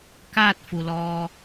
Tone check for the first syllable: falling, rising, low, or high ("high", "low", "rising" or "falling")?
falling